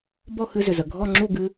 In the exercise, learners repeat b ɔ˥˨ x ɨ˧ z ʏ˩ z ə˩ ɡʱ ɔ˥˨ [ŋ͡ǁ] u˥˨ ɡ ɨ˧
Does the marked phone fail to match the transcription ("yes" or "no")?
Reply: no